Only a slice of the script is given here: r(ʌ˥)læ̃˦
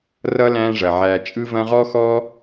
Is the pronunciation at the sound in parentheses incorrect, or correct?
correct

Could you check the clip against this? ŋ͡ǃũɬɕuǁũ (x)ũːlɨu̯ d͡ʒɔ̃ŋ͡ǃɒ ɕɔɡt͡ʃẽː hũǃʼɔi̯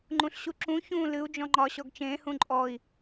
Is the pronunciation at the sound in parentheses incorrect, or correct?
incorrect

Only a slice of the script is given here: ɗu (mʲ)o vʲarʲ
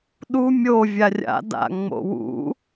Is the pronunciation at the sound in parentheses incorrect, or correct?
correct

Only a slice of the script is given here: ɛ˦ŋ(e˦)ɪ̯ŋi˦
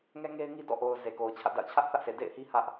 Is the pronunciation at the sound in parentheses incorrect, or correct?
correct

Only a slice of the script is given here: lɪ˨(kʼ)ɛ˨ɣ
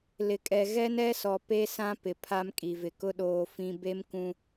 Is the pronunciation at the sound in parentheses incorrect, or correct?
correct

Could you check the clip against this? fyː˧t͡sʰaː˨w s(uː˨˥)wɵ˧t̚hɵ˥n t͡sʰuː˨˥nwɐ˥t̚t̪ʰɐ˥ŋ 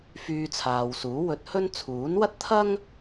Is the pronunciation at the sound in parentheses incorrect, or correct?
correct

